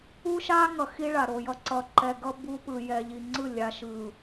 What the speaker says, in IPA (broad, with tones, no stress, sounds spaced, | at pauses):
u˦ ʃ a˦ ŋ ʌ˨ x i˦ ɭ a˨ ɾ o˨ j ʌ˦ ǀ ʌ˨ ǃ ɛ˨ ɡ ʌ˦ b u˦ p ɯ˨ j ɛ˨ ʎ i˨ ŋ͡ǀ ɯ˦˨ lʲ a˨ ʃ ɯ˨